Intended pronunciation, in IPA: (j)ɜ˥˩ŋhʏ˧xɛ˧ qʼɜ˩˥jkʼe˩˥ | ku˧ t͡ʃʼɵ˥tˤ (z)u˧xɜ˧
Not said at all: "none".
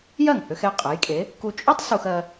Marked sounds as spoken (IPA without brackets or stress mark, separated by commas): j, s